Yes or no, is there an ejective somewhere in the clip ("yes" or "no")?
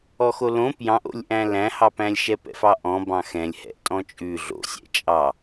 yes